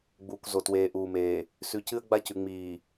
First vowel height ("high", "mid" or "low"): high